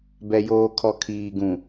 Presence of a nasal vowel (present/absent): present